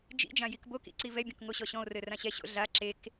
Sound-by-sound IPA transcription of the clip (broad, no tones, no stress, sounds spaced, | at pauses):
d͡ʒ ḭ d͡ʒ ã j i k b o k ḭ ǀ i v ɛ bʲ ɔ̃ k ŋ o ɕ ɔ ɕ ɔ̃ o̯ r ɘ r ã ɕ ɛ ɕ o̰ ɮ a ǁ e k